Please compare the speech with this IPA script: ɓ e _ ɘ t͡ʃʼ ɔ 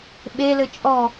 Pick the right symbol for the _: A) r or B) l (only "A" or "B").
B